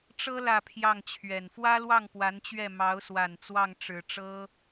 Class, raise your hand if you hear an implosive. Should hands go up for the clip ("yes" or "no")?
no